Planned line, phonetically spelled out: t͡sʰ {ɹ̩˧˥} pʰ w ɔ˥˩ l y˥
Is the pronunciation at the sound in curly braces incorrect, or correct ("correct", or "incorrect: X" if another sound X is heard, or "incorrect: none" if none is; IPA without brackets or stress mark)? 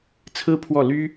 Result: incorrect: ɹ̩˥